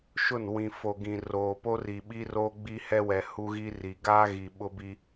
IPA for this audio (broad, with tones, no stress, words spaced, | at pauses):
ʃʊ˦˨nwĩ˨fo˨ ɡĩ˨ roː˨po˦ri˨ɓi˦ ro˦ɡ͡bi˦ hɛ˦wɛ˨hu˦ɣi˦ ri˨ ɡaː˦ɣi˨ ɓʊ˦bi˦